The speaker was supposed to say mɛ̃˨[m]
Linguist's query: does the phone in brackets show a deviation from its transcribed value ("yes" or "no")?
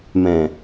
yes